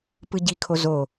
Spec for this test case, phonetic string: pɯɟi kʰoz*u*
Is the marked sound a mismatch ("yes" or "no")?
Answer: yes